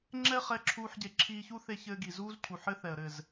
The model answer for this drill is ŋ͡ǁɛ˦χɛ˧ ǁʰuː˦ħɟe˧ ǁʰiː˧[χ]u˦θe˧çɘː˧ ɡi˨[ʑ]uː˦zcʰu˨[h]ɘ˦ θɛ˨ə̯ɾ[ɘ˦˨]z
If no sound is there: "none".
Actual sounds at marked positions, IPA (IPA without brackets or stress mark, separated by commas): ç, z, ħ, ɘ˦˨